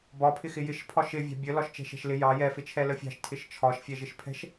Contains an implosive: no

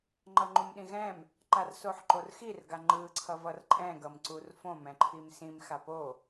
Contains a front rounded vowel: no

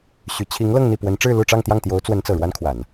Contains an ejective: no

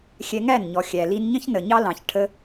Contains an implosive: no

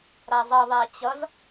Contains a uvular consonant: no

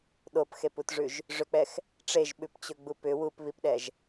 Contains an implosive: yes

